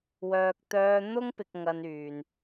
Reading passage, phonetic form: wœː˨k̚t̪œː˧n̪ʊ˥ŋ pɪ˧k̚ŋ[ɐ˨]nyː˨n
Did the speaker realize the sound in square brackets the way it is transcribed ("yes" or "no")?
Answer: no